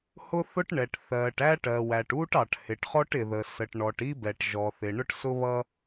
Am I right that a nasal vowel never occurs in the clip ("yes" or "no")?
yes